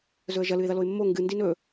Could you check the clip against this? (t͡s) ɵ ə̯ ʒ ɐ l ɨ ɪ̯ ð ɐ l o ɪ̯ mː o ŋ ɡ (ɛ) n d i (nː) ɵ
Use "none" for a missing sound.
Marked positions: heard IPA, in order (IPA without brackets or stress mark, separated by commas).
z, ɨ, n